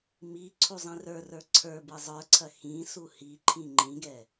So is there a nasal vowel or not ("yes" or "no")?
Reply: yes